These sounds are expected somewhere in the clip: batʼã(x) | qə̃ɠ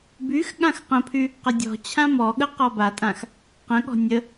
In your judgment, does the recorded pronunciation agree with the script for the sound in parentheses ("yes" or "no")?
yes